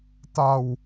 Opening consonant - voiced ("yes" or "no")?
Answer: no